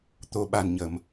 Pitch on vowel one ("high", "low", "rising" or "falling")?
low